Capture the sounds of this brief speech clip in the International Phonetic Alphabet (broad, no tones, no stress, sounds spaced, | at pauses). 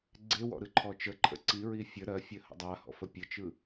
ɡ͡ǀ e w ɔ̰ ɾ ɯ ǃʰ ɔ t͡ʃ ə ǃʰ ə̰ ǀ i ɹ i fʲ ə ɾ ɜ fʲ ɜ h ə̰ dˤ a h ɔ̰ f ə pʲ ə t͡ʃ ɯ